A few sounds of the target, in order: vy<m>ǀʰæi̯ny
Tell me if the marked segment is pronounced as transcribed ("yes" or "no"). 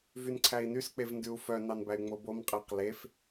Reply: no